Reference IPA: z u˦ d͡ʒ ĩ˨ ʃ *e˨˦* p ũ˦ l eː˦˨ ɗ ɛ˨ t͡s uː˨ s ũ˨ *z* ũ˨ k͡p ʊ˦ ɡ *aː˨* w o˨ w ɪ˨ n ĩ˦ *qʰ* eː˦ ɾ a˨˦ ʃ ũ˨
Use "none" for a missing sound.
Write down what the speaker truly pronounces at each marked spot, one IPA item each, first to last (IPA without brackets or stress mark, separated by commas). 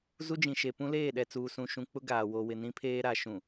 e˨, ʃ, aː˨, pʰ